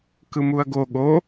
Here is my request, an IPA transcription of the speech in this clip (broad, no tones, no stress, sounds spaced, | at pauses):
k ɯ m u ɐ̯ ɡ o ɠ o